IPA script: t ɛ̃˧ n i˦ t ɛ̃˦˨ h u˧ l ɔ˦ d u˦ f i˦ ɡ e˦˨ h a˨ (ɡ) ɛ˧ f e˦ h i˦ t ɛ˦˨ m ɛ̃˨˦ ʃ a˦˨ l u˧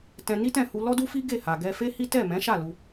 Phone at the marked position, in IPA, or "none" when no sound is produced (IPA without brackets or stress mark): ɡ